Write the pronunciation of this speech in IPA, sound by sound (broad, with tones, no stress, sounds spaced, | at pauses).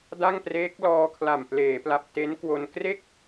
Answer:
d a˥˩ ŋ p r eː˦˥ k̚ l ɔː˧ kʰ l a˨˩ m p l eː˩˦ p l a˨˩ p̚ t e˦˥ n k w o˧ n k r e˥˩ k̚